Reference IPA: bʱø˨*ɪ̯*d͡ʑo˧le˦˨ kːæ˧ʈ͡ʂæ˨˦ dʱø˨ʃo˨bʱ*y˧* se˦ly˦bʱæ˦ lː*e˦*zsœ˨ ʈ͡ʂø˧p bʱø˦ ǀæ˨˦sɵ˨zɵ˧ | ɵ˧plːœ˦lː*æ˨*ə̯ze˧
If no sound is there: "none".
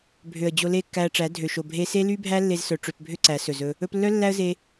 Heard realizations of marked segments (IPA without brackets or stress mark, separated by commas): ə̯, e˧, e˧, æ˦